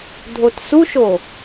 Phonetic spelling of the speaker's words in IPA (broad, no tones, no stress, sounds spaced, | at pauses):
dʱ o t s u ʃ o